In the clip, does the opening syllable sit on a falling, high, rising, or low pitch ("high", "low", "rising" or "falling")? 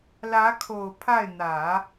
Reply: rising